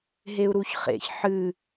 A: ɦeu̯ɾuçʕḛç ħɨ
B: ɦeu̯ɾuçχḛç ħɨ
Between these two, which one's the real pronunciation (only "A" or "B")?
B